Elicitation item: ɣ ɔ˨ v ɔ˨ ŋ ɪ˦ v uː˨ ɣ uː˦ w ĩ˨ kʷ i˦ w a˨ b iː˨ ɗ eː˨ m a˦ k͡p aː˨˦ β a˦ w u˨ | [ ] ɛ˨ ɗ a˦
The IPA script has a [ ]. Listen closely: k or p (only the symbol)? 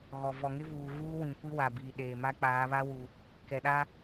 k